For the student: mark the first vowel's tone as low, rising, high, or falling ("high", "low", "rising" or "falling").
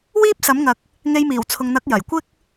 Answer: high